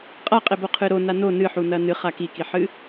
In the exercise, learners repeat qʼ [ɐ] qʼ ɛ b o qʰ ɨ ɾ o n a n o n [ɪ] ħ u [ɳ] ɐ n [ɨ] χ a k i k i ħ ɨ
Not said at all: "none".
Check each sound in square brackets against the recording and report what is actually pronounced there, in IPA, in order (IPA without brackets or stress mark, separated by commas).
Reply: a, ɨ, n, ɨ